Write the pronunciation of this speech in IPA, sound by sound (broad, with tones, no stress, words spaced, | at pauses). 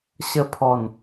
ɕə˧pʰɔ˨˩n